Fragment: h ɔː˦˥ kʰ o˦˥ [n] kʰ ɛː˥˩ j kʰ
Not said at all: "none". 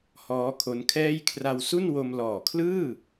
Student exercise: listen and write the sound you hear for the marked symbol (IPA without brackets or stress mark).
n